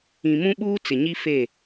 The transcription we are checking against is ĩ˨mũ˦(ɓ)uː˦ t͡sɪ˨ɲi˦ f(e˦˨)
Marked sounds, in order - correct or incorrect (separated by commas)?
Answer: correct, correct